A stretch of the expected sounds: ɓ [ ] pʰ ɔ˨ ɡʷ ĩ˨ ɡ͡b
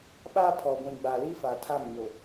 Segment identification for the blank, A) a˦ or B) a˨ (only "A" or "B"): A